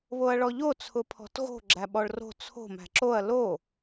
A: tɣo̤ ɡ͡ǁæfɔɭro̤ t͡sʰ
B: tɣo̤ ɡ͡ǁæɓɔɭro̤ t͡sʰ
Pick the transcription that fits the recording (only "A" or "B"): B